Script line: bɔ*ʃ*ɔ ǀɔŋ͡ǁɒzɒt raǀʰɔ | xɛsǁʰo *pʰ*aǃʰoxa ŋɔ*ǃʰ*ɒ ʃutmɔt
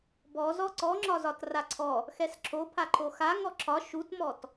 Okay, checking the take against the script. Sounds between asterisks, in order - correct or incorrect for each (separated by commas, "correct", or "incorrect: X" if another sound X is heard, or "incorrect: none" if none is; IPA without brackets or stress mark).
incorrect: z, correct, incorrect: ǁʰ